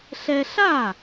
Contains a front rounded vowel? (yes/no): no